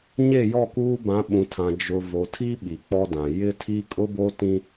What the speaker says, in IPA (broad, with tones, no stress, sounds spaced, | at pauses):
ɲ e˦˨ j ɔ˦˨ k uː˦ b ã˨˦ ɓ ũ˨ tʰ ã˨ d͡ʒ ʊ˨ v o˨ tʰ i˦ ɓ i˨ k͡p ɔ˦ d ã˨ j ɪ˦ tʰ i˦ kʼ ʊ˦ b o˦ t ĩ˦